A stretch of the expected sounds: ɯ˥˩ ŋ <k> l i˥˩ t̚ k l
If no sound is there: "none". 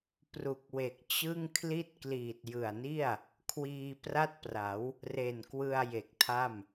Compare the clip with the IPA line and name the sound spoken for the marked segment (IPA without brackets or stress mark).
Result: kʰ